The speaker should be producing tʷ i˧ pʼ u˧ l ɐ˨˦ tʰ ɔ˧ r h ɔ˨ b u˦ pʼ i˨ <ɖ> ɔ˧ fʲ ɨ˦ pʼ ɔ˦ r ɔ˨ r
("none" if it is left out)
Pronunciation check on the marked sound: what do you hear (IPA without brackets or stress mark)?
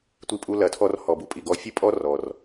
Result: ɡ